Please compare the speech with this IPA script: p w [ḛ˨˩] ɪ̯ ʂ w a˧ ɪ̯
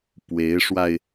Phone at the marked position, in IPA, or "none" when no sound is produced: e˧˥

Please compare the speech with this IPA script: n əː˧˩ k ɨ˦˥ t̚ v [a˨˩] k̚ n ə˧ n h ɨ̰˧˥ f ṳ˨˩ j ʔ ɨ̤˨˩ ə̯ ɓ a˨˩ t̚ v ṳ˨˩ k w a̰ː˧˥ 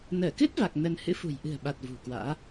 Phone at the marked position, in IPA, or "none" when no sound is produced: a˨˩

